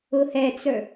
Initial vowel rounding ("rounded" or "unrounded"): rounded